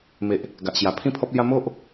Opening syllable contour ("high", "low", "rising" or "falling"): low